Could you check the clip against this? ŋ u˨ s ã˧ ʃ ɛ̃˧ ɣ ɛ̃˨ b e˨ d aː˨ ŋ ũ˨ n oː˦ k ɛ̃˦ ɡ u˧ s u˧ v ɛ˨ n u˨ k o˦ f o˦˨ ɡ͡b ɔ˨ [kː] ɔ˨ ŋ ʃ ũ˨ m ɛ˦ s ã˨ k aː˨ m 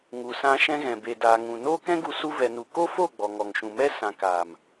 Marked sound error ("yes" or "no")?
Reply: yes